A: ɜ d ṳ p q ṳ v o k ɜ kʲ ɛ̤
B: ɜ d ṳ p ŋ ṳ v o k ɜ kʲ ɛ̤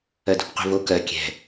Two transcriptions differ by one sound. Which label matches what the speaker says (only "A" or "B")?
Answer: A